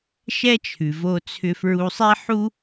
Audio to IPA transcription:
ʃɛ˥t͡ʃʰʉ˩vo˧t͡sʰʏ˧ fɹu˧sˤe˥ħu˥

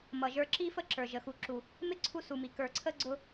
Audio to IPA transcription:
mʌ˨ʒə˞˧ǁi˦ fə˦ǁə˞˨ ʒə˨ xu˨ǁu˨ | mɪ˦ǀʰu˧su˨mi˨ kə˞˨ǀʰə˧ ɡ͡ǀʊ˧

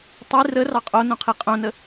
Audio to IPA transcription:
tˤi rə rɑqʼonõqʰi qʼõnə

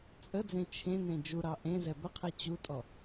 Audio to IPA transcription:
t͡sʼəd͡zẽ t͡ʃʰẽ nẽd͡ʒuɾɑ ʔẽ zɛbəqʰɛ t͡ɕutʼɔ

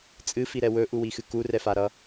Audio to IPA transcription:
t͡sʼɨfiɾɛ wɵʔuwixɨ kurɛfaɾʌ

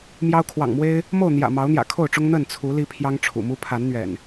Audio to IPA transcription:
mjɑ˦ʊ̯ kʰwɑ̰˨˩ŋmwe˦ɪ̯ | mo˥˨ʊ̯n̪jä̰˨˩ mɑ˨˦ʊ̯n̪jä̰˨˩kʰo˥˨ʊ̯ʈ͡ʂʊ˦ŋ n̪ə˥˨nt͡sʰu˨˦ li˦pʰjɑ˦ŋʈ͡ʂʰṵ˨˩mu˦ pʰa˨˦nn̪ɥɛ̰˨˩n

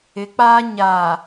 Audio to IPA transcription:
ɪ˨˦k͡paː˦ ɲaː˨

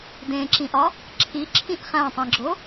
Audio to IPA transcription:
dẽǁĩʔɒ | ǁʰiǁʰĩʔ χæ̃tˤĩɡ͡ǁo

